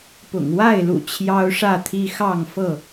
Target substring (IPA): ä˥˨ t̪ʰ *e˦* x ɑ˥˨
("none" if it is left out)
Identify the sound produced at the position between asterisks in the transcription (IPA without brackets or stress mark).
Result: i˦